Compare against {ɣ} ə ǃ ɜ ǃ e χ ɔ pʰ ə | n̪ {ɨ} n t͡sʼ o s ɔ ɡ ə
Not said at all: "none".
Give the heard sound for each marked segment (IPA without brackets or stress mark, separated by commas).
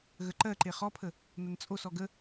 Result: ɣ, ə